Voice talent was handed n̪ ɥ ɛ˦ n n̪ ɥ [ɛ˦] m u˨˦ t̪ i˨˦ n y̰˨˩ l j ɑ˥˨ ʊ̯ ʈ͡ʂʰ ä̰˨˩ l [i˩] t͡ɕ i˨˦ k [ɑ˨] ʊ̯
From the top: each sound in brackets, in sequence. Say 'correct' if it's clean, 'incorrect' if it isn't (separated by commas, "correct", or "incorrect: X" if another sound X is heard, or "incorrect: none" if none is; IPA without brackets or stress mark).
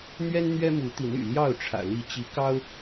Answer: correct, incorrect: i˨˦, incorrect: ɑ˦